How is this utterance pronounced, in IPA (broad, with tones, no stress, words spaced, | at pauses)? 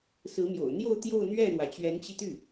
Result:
sɹ̩˧˥mjo̰˨˩ʊ̯ n̪jo˥˧ʊ̯ t̪jo˥˧ʊ̯n̪ɥɛ˥˩n̪wä˩ t͡ɕɥɛ˧˥nt͡ɕi˧t̪y˥˩